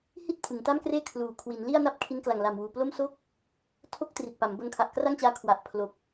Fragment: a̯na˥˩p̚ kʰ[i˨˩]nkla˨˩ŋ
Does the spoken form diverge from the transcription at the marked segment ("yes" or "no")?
yes